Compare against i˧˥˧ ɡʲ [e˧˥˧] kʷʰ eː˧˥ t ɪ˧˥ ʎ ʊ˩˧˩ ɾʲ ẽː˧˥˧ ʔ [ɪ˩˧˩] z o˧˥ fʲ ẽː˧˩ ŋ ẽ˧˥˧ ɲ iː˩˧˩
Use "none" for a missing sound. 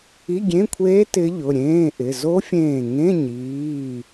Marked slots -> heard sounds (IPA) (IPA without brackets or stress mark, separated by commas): ẽ˧˥˧, ɪ˩˧˩